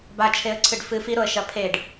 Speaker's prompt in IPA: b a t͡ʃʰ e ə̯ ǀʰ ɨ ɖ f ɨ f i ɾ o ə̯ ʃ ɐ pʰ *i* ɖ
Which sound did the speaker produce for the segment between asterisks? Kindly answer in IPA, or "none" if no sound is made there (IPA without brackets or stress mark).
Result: e